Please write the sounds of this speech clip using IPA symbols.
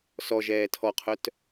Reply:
sɔ ʒɛːtʰɔqʰœt

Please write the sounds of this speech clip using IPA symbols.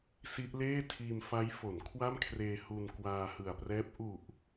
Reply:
si˦˥ʔleː˥˩ tʰiː˧mfa˦˥jfo˩˦n kʰwa˥˩mkʰreː˧ hu˧n kwaː˧hɯ˨˩a̯prɛː˦˥p̚ ʔu˨˩ʔ

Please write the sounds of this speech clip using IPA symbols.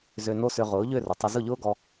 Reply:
zø˧ no˥sʏ˧ ʁʊː˩˥ʎø˥˩rʊ˩ tˤʏ˧ zʊ˥˩ʎʊː˥ɡɔ˧

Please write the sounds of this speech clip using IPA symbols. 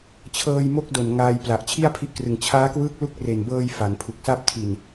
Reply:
t͡ɕʰɤː˧jmo˦˥k̚do˨˩n ŋaː˧jpla˨˩ʔ t͡ɕʰi˥˩a̯pʰi˦˥ʔkrɯ˨˩ŋ t͡ɕʰaː˦˥kwɯː˦˥k̚lu˦˥k̚ re˨˩nbɤː˧j fa˩˦npʰu˨˩k̚sa˥˩p̚ tʰi˨˩n

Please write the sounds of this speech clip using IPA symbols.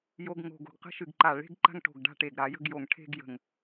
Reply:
jo˧ɡŋo̤˧˩ɡ o̤˧˩ɡqə̤˥ʃɨ˧˩ɡ ǃa˧˩ ɭe̤˥ɡ ǃa̤˥ŋʈo̤˧˩ɡ ɖa̤˥˧ʈe˧˩ɡ ɾa˩˧jə̤˥˧ɡ jo˧˩ŋ ʈʰe̤˥˧ɡjə̤˧˩ŋ

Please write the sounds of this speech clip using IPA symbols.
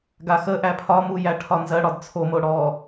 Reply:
ɡaxə ʔæpʰɒ mujæʈʰɒnzɜ ɽɒdt͡sʰo moɽɔ

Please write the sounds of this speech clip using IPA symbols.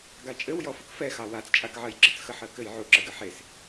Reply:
ɡat͡ʃʼɘw jɔfəkfɛ xɑwat͡st͡ʃʼakʕɜj ɡ͡ǁɘt͡sxəħɜkɘj ʕuǁəɡɘ ħes

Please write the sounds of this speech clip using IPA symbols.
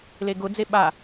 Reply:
leɡʊd͡ze ɓa

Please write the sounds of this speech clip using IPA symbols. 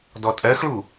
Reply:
dɔtʼɜxɭu

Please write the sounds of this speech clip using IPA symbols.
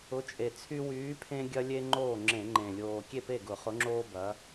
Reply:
ʊ˨˥t͡ʃʼe˨˩t͡sʰy˦ wyː˨˥pʰẽ˦ɡʲɐ˦lʲe˦ ŋ͡ǃoː˥˩ŋ͡ǁẽ˧˩˧ŋ͡ǃẽ˨˩ lʲoː˨˩ kʲe˥˩pe˥˩ ɡʊ˧˩˧χʊ˨˥ŋ͡ǁoː˦bɐ˩˧

